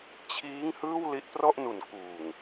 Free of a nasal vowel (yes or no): yes